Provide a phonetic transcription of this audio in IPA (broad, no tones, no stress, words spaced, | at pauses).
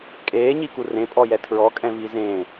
kʼeːɲiku rẽpʼɔjɛ tʰɹɔkʼɛ̃vi zẽ